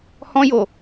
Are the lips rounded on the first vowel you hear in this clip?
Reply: yes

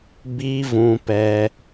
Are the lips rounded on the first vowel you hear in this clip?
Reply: no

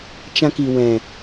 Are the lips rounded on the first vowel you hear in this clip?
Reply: no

